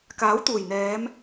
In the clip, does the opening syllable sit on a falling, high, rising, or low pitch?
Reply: rising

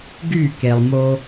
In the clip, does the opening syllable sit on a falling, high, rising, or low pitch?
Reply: falling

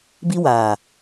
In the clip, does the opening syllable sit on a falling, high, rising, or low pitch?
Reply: high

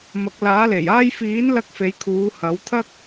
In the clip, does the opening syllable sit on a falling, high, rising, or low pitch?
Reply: rising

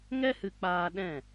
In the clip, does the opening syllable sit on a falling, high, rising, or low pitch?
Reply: high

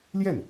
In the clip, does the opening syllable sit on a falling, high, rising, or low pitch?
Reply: falling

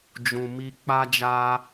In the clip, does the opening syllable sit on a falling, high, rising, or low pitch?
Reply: low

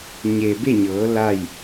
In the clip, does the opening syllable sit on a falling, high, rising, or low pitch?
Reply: low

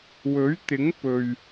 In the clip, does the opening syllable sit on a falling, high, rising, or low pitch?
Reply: rising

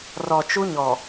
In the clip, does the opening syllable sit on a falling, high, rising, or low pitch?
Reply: low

